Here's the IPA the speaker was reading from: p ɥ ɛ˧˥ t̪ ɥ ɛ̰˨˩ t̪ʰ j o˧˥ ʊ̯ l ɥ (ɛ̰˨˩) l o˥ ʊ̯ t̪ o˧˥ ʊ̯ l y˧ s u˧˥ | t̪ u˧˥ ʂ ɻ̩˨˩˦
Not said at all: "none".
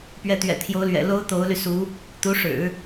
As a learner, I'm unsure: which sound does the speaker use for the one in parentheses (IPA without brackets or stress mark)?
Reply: ɛ̰˨˩